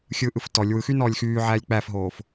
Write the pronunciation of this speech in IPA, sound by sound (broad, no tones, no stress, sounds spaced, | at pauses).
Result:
xʲ ɯ ʔ ɯ f t ɔ lʲ w ɯ x y n ɔː lʲ x yː ʕ æː lʲ k͡p æ f ɦ oː f